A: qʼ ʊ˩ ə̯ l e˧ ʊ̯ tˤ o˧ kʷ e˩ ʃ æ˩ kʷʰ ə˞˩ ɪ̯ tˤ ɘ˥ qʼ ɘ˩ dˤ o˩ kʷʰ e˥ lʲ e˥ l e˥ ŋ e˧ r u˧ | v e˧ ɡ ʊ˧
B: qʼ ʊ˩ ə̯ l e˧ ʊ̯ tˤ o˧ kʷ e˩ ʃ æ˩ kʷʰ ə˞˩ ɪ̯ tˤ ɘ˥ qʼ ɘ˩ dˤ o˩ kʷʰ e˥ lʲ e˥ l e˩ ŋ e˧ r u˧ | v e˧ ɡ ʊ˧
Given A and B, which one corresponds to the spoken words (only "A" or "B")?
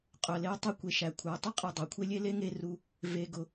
A